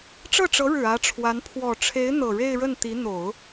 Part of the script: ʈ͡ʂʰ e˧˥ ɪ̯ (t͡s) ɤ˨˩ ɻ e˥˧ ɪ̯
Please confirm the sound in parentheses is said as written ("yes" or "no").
no